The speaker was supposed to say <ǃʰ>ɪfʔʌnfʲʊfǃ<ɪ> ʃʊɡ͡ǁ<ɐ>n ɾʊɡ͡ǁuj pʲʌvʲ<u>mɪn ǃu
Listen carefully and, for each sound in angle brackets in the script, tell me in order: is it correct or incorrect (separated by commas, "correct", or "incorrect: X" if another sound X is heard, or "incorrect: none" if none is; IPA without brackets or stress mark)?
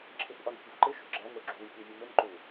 incorrect: ǁʰ, correct, incorrect: æ, correct